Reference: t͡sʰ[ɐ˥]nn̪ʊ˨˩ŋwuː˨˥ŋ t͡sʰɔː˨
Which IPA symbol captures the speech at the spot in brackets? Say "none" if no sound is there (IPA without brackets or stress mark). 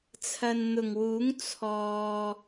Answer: ɐ˨